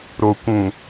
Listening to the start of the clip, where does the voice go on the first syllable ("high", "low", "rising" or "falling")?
low